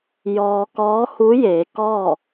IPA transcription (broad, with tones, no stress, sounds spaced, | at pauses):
j ɔː˧ k ɔː˧˥ h u˧˥ j eː˩˧ k ɔː˥˨